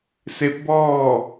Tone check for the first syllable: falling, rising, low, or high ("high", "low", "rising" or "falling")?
rising